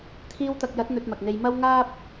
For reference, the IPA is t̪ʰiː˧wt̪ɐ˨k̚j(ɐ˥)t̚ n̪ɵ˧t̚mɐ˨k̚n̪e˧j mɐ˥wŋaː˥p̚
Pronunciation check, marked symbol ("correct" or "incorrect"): incorrect